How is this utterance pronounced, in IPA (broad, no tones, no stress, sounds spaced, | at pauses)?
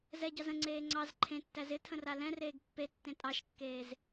z ɛ ɟ ɑ z ə̃ ŋ͡ǀ eː ŋ͡ǀ ɑ z ǃʰ ẽ tː æ z ɪ tʰ ə̃ r a l ɛ̃ r eː ɡ pː e tː ẽ tʼ ɑ ʃ kː eː z